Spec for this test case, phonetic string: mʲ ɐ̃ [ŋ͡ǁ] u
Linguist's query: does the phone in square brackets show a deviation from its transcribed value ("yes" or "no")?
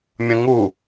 yes